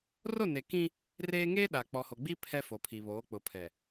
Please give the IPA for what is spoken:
r o˦˨ n e˨ k ĩ˦ | r eː˦ ŋ eː˦ ɗ a˨ k͡p ɔ˨ h o˨ ɡ͡b i˦ pʰ ɛ˦ f o˨ pʰ i˨ β oː˨˦ k͡p ʊ˨ pʰ ɛ˨

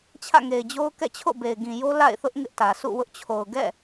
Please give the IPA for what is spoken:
t͡ɕʰ ä̰˦˨ ŋ e˨ ɪ̯ d͡ʑ o˦ ʊ̯ k ɛ̰˦˨ t͡ɕʰ o̰˦˨ b e˨ ɪ̯ ɡ ĩ˨ j o˦ l a̰˦˨ ɪ̯ θ ʊ˦ ʔ ŋ ɪ˦ ʔ t ä˨ s ṵ˦˨ w ʊ˦ ʔ t͡ɕʰ o˨ ʊ̯ ɡ ɛ̰˦˨

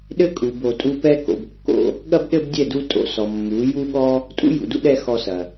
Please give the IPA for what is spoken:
ɗ ɘ˦ kʼ u˨ b o˨ tʼ u˧ p ɛ˦ k o̰˨ b kː o̰˧ | ɠ ɐ˦ b ɗ ɘ˦ b dʲ ɛ˦˨ d u˧ tʼ o̰˨˦ s ɔ˨ mː u˨˦ j u˦ ɠ ɔ˦ | tʼ ṵ˦ j ṵ˨ d ṵ˦ ɗ ɛ˧ x ɔ˧ s ɐ˨

